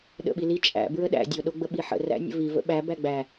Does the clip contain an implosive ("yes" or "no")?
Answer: yes